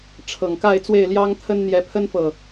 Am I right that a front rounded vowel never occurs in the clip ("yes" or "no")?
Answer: yes